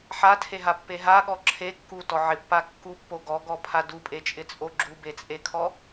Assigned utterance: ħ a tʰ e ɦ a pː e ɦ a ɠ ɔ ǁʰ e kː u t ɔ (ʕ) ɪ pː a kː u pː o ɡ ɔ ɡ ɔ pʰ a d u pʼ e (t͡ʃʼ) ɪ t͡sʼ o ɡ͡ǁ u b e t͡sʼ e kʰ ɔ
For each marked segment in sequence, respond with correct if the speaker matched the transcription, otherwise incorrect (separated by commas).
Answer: correct, correct